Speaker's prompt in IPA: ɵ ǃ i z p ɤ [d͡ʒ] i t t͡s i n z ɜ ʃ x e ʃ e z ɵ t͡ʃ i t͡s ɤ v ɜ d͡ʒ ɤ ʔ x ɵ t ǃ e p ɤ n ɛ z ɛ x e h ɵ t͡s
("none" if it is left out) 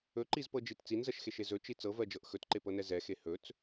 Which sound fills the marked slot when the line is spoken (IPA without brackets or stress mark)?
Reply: d͡ʒ